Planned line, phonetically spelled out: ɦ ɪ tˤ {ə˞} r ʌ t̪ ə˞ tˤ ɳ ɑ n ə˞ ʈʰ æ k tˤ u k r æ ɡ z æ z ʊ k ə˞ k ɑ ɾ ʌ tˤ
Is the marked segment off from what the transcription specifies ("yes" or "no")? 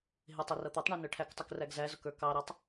yes